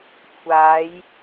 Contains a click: no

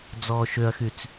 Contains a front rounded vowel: yes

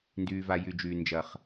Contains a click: no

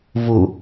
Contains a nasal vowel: no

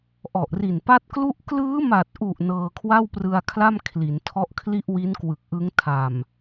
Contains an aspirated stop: yes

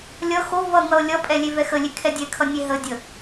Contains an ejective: yes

